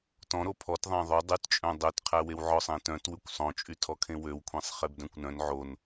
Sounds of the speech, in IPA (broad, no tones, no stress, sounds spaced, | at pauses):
t ɔ̃ ɾ o pʰ ɔ t ðˤ æ̃ ðˤ o dˤ y t t͡ʃʼ œ̃ dˤ ø t qʰ æ w e w ʕ ɔ sˤ ẽ t œ̃ t w ʉ kʷ sˤ õ t͡ʃʼ y tʰ ɔ kʰ ẽ w ø w kʷʰ ẽ sˤ χ e b d œ̃ kʷ n œ̃ n ʕ o n